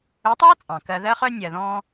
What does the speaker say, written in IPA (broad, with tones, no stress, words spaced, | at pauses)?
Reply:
ɵ˨˦tˤɑː˦ t͡sʼɑ̃˨kɜ˧ ðɜ˦χœ˦ nʲɜ˨ðɔ̃ː˧